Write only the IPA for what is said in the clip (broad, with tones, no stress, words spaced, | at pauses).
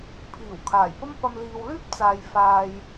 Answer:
pʰiː˨˩wkʰaː˨˩jpɐ˥mpɐ˧m liː˨wlyː˥p̚t͡saː˨j faː˧j